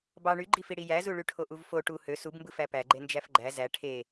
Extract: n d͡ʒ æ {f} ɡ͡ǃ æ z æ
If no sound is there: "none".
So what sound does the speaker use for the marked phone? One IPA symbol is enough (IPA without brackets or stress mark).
f